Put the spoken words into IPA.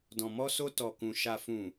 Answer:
dɔ̃˨ mɔ˧so˧ tɔ˨kũ˨ ʃa˨fũ˨

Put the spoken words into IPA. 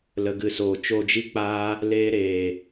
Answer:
lə˨ɡɨ˨soː˨ t͡ʃo˧d͡ʒi˦k͡paː˦ | leː˧ ɾeː˨

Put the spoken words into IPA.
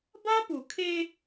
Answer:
ba˦pu˨kʰe˦

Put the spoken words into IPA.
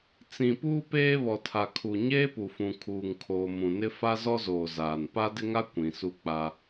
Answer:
t͡sĩ˨ puː˦peː˦βɔ˨tʰa˨ kʰu˨ɲeː˦pu˨fũ˨ kʰuː˨ŋkʰoː˨mũ˨nɪ˦ fa˦zɔ˦zoː˨zaː˨n pa˦dɪ˦ŋa˦ kʷĩ˨su˦k͡pa˦

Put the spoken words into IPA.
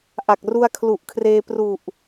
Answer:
ʔa˨˩k̚ru˧a̯ kʰlu˨˩ʔkʰreː˧ pru˨˩ʔ

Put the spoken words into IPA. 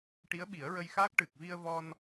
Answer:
ʈi˧˥ə̯ɓi˨˩˦ə̯ɹə˧jxaː˦˥k̚ ʈɨ˨˩k̚ vi˧ə̯vɔ˧n

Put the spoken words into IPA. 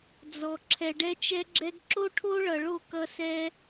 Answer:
d͡zɔ˩ ǁʰɛ˩ɖɛ˧t͡ʃɛ˧ɡ͡ǁɛ˧ɡ ǁo˥ʈʰo˥ɭʌ˩ɭo˥˩ kʌ˧sɛ˧

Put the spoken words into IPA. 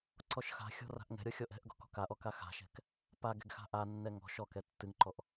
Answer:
ǀɔʃxa̤xʲɔ̤ ra̤ʔŋɛ̤ɾʲɔ xʲɔʔɛ̤ʔɡɔ̤ kɔ̤kaʔɔ kaxa̤ʃɛ̤k | pa ɡɛ̤ɡxa̤ʔanːɛ ŋɔ̤ ʃɔkɛ tːɨŋǃɔʔ

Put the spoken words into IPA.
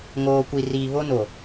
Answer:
ŋoː˨kʷi˨riː˨ βo˦no˨

